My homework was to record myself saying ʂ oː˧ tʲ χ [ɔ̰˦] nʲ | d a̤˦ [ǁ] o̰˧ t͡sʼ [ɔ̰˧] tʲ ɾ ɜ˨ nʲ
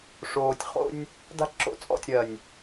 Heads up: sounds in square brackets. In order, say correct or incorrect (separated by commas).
incorrect, correct, incorrect